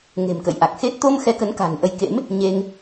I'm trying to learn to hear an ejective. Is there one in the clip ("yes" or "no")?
no